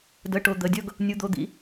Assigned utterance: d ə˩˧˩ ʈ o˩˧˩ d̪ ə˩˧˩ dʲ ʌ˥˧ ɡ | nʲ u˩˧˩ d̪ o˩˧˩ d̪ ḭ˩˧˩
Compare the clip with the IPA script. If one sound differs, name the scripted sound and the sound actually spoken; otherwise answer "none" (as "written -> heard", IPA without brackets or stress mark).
none